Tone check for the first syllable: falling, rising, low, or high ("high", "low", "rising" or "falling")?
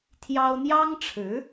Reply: high